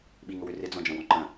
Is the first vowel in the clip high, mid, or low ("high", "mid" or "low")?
high